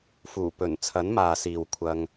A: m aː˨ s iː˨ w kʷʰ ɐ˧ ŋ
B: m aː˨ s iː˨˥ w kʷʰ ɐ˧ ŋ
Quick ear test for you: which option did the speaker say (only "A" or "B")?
A